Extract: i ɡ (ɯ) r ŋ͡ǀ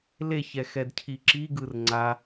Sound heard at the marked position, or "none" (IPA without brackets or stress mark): ɯ